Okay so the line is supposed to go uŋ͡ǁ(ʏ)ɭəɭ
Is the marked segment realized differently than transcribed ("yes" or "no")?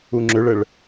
no